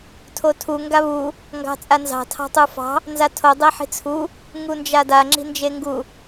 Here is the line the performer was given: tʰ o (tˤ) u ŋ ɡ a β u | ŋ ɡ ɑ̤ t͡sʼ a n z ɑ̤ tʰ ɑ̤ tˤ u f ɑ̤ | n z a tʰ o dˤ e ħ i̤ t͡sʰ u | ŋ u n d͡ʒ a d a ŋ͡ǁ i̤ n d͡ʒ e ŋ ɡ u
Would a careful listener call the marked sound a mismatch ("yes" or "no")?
yes